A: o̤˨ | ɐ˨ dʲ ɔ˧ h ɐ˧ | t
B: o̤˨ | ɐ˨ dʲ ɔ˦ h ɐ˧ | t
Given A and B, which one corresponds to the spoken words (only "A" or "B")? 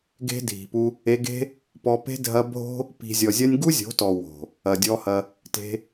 A